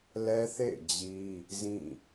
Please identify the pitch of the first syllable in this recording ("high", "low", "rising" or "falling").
high